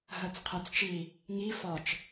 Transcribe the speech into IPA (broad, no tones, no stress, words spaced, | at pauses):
ɦɜt͡sqʰɜt͡st͡ʃi | ŋi fɒt͡ʃ